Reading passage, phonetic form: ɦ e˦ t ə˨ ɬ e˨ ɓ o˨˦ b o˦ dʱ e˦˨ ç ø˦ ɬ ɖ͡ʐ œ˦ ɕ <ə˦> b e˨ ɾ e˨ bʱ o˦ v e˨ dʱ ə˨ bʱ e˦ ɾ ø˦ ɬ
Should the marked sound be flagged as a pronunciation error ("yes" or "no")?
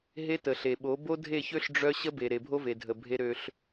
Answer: no